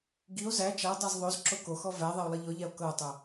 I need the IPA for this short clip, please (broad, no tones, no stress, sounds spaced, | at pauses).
ɡ i o̯ z æ t͡ʃ a dˤ a z ðˤ o z ǁ o k o x ɔ v æ ðˤ ɛ o̯ lˠ i ʎ ɔ ʎ æ o̯ k ɤ o̯ tˤ o